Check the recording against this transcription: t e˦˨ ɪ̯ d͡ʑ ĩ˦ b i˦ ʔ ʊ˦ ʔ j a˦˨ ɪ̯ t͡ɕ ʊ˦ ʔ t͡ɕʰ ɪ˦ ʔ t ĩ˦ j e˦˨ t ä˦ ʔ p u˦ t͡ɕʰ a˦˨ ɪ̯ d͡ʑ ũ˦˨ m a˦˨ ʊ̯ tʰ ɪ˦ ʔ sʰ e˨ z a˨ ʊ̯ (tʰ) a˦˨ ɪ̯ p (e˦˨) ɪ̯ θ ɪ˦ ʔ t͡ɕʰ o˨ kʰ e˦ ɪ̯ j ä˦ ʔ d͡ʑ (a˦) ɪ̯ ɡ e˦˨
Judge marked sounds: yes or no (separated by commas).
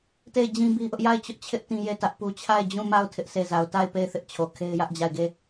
no, yes, no